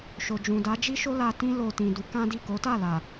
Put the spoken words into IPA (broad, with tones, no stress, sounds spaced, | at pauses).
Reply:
ʃ o˨ d͡ʒ ũ˨ d a˨˦ d͡ʒ i˦ ʃ o˦ l a˧ t ĩ˦ l o˧ t ĩ˨ d u˨˦ k ã˦ d i˦˨ k o˨˦ t a˦˨ l a˨